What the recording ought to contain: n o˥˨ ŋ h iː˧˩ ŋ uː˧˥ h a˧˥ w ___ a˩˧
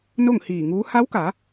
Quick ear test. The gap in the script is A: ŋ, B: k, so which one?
B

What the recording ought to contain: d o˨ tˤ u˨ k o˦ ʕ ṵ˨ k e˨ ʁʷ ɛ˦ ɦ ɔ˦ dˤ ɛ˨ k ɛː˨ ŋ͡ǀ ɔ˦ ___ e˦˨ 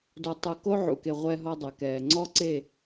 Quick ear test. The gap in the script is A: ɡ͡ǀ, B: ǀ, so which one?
B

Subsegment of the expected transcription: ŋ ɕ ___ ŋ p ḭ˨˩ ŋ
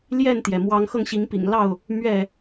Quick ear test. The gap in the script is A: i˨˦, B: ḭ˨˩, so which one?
A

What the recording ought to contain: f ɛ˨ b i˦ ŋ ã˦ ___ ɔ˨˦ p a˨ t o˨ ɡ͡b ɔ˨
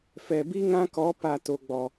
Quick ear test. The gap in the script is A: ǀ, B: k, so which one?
B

